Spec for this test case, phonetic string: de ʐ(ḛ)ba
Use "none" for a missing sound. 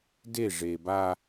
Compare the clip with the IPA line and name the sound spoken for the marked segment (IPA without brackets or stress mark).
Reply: e